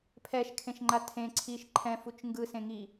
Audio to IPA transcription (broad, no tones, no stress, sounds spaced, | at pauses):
pʰ ɛ ʃ kʰ ẽ ʃ ŋ͡ǃ a tʰ ẽ ǀʰ i ʃ ǃʰ ɛ̃ f u t͡ʃ ŋ ɡ ɯ s ẽ ŋ i